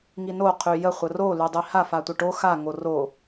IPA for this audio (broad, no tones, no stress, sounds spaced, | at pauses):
ŋ i n o qʰ y j ə χʷ ə r o l y dˤ i h a f a tʷ ə ʈ o x a ŋ o r o